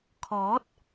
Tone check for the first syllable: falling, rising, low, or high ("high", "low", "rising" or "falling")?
rising